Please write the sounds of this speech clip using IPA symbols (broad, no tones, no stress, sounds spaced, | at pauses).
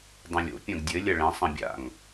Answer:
dˤ ɐ̃ lʲ o̰ pʲ ɐ̃ ɡ dʲ ɘ lʲ ɐ ɭ ɛ̃ sˤ ɐ̃ bʲ a̰ ŋ